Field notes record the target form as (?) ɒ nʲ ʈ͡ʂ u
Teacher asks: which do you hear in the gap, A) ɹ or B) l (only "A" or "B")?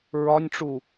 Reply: A